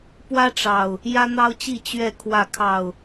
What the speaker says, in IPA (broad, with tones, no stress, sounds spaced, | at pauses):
p w ä˦ ʈ͡ʂ ɑ˨˩ ʊ̯ | j ä˦ n̪ ɑ˦ ʊ̯ t͡ɕ i˥˨ t͡ɕ ɥ ɛ˥˨ kʰ w ä˥˨ kʰ ɑ˥˨ ʊ̯